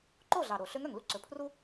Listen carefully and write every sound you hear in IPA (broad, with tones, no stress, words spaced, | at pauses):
ǃo˥˩ ɮɑ˨˩ ɾo˧˩˧ɬø˧˥ŋœ˨˩ŋlu˥ ǀɵ˩˥pʰru˥